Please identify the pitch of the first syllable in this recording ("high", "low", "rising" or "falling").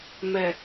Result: low